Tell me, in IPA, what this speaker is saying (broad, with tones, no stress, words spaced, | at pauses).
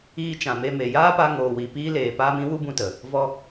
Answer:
iː˧ t͡ʃã˨me˧me˨ jaː˦pa˧ ŋoː˨wi˨ piː˦leː˨paː˦m ĩ˦ wu˦bũ˧tə˨ | vɔ˧